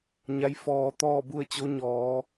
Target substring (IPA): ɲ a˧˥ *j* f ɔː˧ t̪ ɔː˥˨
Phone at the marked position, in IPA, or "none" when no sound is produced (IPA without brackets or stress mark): j